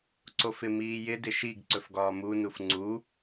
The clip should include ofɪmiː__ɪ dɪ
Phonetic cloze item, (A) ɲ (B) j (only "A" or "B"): B